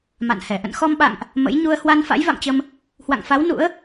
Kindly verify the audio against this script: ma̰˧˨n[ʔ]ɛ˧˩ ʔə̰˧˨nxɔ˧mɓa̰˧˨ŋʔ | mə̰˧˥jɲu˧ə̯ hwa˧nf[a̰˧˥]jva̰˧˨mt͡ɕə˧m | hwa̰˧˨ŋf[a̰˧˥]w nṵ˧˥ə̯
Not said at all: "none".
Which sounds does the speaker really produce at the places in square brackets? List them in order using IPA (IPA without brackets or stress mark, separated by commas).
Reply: h, a̰˧˥, a˨˦